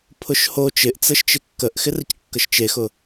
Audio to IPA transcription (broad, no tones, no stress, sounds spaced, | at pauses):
pʰ ʊ ʃ h o t͡ʃ ɪ ʔ t͡s ə ʃ t͡ʃ ɪ kː ə ʔ x ɪ r ə c kː ə ʃ t͡ʃ e x ʊ